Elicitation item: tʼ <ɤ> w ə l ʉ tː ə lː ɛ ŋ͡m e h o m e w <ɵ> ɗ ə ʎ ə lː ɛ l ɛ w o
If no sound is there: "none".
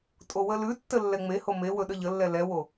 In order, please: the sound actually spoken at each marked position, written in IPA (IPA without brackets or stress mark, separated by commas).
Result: o, ɵ